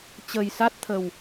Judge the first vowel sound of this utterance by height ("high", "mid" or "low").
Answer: mid